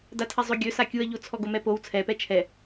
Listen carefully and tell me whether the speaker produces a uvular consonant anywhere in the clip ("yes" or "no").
no